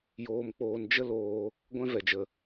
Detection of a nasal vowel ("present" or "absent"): present